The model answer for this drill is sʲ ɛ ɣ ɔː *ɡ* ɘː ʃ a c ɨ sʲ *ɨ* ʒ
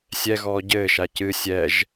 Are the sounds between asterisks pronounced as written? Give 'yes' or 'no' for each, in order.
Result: no, no

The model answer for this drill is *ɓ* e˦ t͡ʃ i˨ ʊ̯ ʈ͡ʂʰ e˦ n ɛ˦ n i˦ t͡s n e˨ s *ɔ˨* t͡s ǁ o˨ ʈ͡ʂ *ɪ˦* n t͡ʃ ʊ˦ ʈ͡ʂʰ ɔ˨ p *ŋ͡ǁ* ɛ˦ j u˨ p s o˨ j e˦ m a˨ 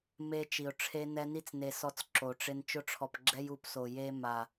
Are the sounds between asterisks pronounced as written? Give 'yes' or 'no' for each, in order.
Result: no, no, yes, no

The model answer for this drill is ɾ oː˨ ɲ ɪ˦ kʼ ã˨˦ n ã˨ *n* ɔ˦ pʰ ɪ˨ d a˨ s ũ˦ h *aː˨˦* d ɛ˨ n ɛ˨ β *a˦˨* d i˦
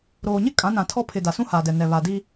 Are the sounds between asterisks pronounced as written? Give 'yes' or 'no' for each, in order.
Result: no, no, no

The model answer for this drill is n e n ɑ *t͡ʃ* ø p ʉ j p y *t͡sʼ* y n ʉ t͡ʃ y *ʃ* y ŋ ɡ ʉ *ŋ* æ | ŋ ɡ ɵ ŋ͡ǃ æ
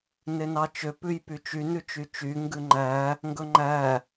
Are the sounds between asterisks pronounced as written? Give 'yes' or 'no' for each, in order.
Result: yes, no, no, no

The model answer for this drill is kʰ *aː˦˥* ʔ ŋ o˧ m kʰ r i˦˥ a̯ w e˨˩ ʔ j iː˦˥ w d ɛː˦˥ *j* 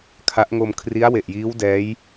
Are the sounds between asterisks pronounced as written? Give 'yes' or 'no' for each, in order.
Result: no, yes

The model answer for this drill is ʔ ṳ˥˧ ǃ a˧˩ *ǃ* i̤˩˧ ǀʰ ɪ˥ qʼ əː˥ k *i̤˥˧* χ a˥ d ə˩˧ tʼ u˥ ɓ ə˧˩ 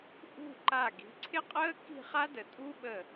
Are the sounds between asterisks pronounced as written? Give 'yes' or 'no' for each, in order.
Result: no, yes

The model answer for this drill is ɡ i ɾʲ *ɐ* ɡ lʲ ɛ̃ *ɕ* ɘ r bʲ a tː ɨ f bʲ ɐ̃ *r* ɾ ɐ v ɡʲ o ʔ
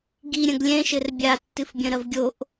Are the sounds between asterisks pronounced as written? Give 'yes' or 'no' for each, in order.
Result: no, no, no

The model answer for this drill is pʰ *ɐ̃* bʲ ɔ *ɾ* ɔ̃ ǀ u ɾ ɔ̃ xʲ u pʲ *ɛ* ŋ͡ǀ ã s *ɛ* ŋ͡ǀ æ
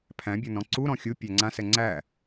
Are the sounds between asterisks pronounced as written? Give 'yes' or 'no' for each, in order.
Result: no, no, no, yes

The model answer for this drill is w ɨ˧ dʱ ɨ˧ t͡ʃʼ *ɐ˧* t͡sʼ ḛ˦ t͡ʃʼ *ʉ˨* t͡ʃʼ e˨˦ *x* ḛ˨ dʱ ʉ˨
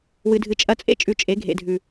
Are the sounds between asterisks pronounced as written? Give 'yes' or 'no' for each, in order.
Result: yes, yes, no

